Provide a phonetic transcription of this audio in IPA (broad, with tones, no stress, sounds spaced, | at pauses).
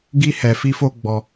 ɡ i˧ h ɛ˨ f i˧ f o˧ ɡ͡b ɔ˧